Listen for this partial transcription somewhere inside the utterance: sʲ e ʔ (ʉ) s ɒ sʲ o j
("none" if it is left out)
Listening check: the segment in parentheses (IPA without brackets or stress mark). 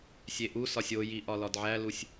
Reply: u